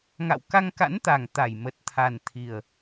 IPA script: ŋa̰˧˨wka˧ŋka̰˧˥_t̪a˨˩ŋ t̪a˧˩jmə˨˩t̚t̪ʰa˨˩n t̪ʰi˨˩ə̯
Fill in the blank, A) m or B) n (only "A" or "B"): B